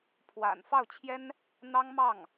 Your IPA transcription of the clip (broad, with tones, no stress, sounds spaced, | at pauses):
pʰ w a̰˨˩ n f ɑ˥˩ ʊ̯ t͡ɕʰ j ɛ˥ n | n̪ ɑ˥ ŋ m ɑ˥˩ ŋ